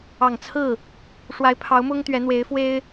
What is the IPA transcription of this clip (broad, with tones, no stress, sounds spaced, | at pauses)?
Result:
ɑ˨˩ ŋ t͡sʰ ɹ̩˥˩ | ʂ w a˧˥ ɪ̯ pʰ ɑ˧˥ ʊ̯ m ʊ˥ ŋ t̪ ɥ ɛ˧˥ n̪ w e˧˥ ɪ̯ f w e˥ ɪ̯